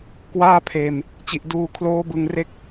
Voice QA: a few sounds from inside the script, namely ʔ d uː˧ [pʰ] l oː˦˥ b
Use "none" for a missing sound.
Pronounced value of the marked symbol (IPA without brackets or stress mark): kʰ